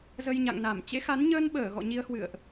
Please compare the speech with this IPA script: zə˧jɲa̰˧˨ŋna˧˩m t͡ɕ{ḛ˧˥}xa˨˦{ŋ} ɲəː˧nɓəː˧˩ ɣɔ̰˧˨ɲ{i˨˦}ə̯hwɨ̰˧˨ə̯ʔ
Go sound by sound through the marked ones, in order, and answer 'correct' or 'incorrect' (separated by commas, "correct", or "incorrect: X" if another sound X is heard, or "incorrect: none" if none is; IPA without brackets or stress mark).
correct, incorrect: n, correct